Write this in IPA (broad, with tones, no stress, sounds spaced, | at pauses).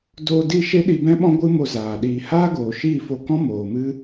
d o˧ d i˦˨ ʃ e˦ ɗ i˧ b ɛ̃˦ ɓ ɔ̃˦ ɡʷ ɨ˦ m o˧ z aː˨ ɗ iː˧ h aː˦ ɡ oː˨ ʃ iː˦˨ f o˧ k ɔ̃˦ m oː˨ m ɨ˦